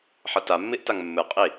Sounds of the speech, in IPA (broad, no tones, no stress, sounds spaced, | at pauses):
ħ ɐ t a mː i ʔ t a ŋ mː ɨ qʼ i